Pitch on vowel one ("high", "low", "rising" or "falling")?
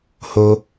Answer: high